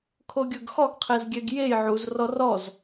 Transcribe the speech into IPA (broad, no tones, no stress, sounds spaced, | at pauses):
kʰ o ɡʲ ɤ ɡ x ɔ ɡ qʰ ɛ z ɡʲ ɛ ɡ j e j ʕ u z r ɔ r ɔ z